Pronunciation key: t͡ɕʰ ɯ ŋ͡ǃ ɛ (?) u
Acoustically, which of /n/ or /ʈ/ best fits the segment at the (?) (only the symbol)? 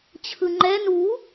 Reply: n